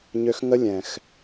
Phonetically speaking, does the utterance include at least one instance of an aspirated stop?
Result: no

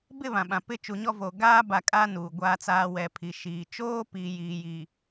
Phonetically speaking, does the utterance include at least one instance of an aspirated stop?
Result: yes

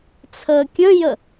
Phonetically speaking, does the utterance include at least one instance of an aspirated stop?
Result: yes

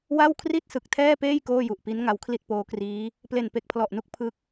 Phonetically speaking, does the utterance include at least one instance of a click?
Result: no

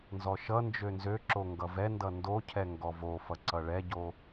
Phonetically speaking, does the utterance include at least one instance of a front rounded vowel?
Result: yes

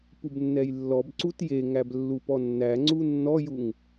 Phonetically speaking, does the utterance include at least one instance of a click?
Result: yes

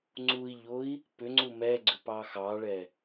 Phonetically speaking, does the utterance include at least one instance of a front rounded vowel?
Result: yes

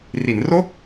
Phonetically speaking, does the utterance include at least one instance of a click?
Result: no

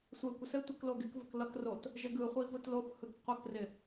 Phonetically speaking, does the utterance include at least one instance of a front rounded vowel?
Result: no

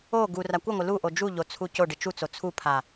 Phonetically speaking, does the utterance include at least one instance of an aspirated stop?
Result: yes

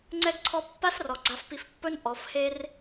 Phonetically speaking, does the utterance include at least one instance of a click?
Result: yes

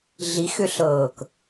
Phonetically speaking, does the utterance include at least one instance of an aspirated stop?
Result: no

